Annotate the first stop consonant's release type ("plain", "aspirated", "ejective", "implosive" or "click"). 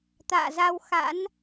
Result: plain